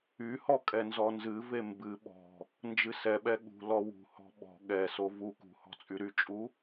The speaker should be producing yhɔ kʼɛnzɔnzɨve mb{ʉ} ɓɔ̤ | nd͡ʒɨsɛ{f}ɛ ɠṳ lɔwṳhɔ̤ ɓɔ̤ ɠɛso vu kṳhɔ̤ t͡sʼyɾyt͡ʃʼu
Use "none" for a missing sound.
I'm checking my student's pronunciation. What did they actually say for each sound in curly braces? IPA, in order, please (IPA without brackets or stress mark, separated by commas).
ɨ, ɓ